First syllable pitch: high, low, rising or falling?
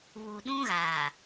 low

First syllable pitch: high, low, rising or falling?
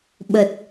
low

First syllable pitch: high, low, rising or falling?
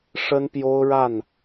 high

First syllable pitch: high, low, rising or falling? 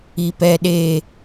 low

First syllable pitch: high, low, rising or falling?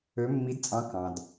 rising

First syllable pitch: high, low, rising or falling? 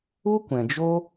high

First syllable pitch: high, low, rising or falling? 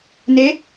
rising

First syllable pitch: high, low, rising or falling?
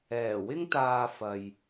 low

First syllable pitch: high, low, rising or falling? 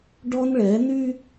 high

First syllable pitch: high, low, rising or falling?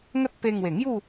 high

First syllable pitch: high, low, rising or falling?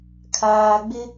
low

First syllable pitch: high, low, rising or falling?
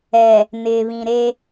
low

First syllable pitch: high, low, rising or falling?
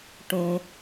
low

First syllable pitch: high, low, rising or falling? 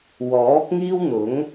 rising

